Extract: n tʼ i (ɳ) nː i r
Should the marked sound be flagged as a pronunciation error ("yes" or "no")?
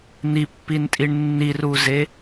no